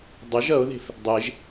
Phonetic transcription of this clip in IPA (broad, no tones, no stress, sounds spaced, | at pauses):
dˤ ə ʒ ʌ o̯ ð e̤ f | dˤ e ʒ